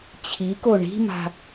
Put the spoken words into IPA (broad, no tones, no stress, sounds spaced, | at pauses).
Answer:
t͡ɕʰ i k o ɳ i̤ m a̤